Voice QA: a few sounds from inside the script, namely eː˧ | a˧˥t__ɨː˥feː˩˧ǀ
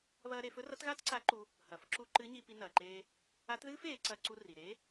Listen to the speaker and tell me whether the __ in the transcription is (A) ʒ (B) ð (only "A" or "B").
B